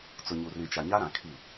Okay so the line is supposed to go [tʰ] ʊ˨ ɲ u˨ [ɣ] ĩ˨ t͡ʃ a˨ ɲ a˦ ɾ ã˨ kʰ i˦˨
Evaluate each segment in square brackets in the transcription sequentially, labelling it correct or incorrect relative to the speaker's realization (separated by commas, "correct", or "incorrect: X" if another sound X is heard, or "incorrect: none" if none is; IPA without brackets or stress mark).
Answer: incorrect: t͡s, incorrect: r